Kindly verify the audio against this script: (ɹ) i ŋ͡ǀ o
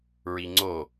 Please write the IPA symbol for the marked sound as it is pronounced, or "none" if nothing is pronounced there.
ɹ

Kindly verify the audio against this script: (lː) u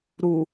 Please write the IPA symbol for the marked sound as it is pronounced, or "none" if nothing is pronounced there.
ɾ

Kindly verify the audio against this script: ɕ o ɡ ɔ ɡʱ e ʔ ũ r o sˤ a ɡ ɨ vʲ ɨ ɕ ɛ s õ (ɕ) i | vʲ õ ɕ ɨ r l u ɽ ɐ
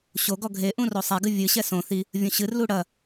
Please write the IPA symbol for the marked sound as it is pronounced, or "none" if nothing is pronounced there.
θ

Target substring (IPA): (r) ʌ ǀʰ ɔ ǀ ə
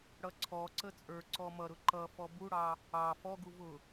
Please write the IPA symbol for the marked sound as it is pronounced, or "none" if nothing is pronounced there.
ɽ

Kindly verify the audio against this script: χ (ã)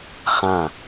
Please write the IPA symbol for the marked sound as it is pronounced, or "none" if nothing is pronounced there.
ã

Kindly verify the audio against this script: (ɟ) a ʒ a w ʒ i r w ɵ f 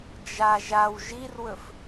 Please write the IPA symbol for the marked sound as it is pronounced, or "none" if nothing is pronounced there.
d͡ʒ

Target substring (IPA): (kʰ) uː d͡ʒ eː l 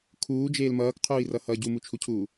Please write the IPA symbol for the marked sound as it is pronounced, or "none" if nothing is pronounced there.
kʰ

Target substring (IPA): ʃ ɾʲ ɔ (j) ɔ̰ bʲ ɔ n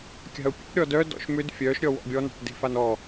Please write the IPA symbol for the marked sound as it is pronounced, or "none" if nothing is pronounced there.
w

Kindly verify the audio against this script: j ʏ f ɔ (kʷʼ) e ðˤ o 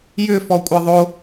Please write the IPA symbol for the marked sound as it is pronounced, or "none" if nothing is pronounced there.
kʷʼ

